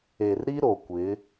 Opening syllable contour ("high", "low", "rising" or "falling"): low